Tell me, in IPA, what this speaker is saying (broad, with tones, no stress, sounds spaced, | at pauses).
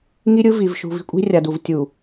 ŋ i˦ ɾʲ ɯ˦ v i˨ v ʃ ṳ˨ v i̤˦ kʷʼ i̤˦ rʲ a˨ d u˨ v tʲ u˨